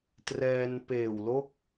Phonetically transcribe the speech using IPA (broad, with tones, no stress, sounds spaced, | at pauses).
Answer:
t r ɛː˧ n p eː˨˩ w l o˥˩ k̚